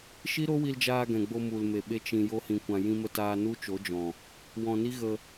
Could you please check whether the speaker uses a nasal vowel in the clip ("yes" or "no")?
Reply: yes